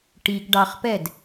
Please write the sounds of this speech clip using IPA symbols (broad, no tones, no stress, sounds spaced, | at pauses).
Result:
ʈ i ɡ ɖ ɑ χ p ɛ d